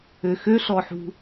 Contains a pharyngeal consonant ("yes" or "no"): yes